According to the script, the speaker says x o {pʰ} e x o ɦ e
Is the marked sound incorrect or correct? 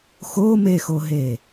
incorrect